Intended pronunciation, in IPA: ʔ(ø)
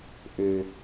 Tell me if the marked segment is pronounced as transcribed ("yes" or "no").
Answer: yes